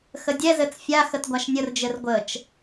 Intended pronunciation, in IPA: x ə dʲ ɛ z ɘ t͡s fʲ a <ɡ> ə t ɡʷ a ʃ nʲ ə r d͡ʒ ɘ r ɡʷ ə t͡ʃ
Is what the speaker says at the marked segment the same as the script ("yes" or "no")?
no